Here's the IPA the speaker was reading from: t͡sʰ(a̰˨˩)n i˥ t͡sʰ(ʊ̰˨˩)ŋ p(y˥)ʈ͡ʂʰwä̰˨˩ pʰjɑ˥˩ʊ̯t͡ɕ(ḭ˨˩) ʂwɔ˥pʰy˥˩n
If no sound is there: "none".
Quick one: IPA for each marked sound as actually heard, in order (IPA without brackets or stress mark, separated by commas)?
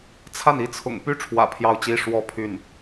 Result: a˥˩, ʊ̰˨˩, y˥, i˥